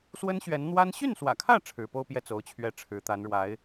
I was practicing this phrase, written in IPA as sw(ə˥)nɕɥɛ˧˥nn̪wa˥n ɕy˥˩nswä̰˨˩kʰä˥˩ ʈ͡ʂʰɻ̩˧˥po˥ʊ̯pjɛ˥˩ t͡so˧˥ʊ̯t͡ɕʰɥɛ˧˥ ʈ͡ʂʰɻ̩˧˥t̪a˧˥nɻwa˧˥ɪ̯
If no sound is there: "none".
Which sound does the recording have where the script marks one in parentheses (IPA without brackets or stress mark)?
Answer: ə˥